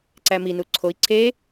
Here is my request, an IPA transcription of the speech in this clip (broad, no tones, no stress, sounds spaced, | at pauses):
ǀ æ m i n u ǀʰ o i̯ ǀʰ e